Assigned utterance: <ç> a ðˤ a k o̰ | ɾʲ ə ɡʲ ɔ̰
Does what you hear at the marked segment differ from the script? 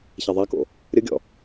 no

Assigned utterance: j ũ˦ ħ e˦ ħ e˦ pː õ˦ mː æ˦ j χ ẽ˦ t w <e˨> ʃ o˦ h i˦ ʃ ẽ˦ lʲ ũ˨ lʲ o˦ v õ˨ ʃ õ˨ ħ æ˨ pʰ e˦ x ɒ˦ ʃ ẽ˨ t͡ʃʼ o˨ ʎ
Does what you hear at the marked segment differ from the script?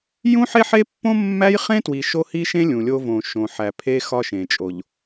yes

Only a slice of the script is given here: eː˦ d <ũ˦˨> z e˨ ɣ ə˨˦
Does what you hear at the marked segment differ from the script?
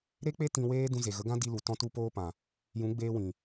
yes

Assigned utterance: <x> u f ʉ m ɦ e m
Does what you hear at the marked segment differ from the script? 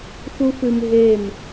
no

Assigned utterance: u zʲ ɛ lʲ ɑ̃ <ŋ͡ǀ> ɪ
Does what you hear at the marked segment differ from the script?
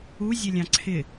yes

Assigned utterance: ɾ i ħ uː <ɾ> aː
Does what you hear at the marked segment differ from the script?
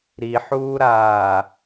no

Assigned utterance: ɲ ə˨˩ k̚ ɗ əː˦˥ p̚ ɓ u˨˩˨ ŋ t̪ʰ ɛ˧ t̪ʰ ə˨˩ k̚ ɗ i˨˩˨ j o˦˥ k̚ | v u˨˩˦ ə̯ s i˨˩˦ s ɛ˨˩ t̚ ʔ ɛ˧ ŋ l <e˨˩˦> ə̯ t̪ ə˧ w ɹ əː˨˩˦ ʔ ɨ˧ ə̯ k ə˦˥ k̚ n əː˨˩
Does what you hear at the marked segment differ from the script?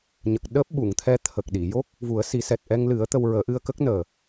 yes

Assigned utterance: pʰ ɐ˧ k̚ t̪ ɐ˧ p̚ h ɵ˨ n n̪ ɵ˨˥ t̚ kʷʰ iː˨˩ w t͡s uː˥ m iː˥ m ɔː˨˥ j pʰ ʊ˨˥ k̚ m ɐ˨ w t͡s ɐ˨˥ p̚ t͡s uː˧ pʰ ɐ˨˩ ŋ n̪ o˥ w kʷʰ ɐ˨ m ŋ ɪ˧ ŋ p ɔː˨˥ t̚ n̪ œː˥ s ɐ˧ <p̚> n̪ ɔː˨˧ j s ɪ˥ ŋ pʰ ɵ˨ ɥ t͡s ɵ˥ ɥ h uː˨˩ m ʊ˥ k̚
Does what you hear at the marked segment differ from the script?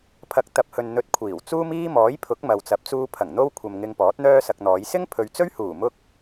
yes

